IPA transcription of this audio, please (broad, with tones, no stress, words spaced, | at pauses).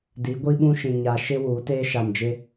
di˨˦ɡʷi˦ɓũ˦ʃĩ˨ ɲa˨ʃɪ˦ wuː˨˦teː˦ʃa˨md͡ʒɪ˦